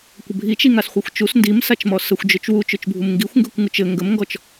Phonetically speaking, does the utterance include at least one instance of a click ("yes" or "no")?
no